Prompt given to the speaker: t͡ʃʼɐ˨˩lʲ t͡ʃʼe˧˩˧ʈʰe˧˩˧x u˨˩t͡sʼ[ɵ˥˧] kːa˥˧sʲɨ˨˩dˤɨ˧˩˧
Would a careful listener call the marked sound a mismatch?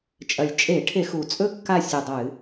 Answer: no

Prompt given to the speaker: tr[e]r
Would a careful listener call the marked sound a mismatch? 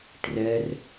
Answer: yes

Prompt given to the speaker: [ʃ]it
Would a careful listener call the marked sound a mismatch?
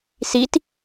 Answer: yes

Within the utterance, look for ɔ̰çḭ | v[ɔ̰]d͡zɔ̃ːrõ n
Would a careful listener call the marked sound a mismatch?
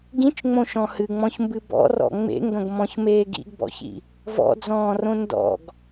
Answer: no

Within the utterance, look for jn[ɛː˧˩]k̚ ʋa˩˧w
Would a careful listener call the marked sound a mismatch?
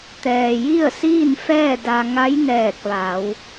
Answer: no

